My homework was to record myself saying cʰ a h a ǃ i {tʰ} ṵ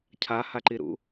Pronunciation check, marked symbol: incorrect: ɾ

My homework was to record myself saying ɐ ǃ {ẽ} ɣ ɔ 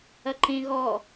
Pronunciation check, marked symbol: correct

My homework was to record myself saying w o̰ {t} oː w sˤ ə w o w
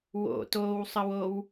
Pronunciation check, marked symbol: correct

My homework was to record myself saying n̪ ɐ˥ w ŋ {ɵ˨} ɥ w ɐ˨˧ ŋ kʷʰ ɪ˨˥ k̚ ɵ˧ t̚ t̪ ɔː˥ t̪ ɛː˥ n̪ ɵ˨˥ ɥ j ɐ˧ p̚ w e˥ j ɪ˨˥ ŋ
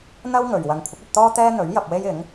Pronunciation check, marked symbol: correct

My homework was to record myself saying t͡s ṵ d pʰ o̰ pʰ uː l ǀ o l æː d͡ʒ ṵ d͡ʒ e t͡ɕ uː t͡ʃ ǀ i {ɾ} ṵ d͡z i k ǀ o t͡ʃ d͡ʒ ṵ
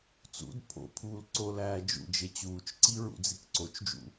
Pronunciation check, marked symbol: incorrect: ɹ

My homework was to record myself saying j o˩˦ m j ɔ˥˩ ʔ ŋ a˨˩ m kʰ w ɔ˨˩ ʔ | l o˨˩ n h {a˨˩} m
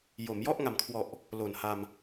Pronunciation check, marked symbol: incorrect: a˧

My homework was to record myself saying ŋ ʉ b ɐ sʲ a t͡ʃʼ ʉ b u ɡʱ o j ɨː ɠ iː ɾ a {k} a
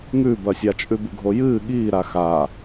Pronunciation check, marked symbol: incorrect: x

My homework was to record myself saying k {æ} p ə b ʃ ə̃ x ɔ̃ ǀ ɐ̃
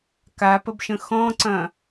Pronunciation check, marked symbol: incorrect: a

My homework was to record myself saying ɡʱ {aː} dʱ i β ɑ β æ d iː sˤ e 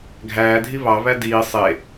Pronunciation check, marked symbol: incorrect: æː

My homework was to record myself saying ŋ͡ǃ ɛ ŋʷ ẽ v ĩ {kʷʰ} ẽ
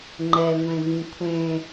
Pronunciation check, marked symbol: correct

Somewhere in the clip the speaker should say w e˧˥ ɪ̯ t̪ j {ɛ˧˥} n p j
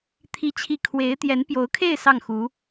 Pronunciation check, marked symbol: correct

